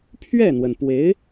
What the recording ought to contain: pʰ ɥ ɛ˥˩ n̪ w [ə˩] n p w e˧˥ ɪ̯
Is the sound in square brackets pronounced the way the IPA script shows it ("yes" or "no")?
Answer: yes